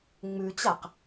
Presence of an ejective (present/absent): absent